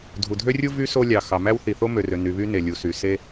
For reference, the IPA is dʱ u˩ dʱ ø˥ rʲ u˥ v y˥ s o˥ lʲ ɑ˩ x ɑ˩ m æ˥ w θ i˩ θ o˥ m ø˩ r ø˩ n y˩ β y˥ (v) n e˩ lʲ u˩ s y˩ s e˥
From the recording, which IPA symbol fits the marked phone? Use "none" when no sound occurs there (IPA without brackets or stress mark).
none